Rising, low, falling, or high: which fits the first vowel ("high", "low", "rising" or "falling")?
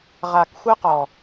low